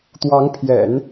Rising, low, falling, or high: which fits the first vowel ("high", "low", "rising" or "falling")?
rising